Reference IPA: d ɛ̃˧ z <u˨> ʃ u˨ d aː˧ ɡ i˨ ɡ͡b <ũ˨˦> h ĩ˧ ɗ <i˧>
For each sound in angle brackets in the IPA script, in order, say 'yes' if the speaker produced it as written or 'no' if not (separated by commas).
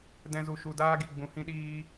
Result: yes, no, no